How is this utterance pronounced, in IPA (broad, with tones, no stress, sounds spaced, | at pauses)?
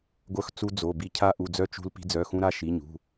ɡʷ œ˧ x t͡s u˧ d͡z o˩˧˩ b i˧ cʰ a˧ ʔ u˩˧˩ d͡z œ˧ t͡ʃ ṳ˧ l p i̤˧ d͡z œ˩˧˩ x ũ˧ ɾ a˧ ʃ i˩˧˩ ɲ ṳ˩˧˩